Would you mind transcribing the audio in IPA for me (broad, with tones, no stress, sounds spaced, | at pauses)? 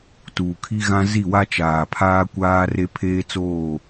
t uː˨ kʰ i˦ ɣ ã˦ z i˦˨ w a˦ t͡ʃ aː˨ pʰ aː˦ kʷ aː˦ r e˦ pʰ eː˦ t͡s oː˦˨